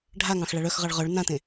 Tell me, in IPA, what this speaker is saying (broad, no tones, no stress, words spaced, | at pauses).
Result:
ɖʱaŋɑ̃x ɭaɭœxʁɑɭ ʁœɭ nãtẽ